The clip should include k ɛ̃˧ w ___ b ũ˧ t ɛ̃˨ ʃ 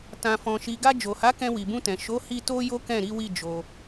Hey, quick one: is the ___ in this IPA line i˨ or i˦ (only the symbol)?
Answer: i˨